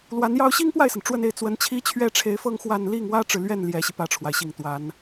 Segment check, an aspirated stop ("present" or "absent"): present